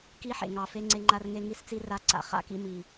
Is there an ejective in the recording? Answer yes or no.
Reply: no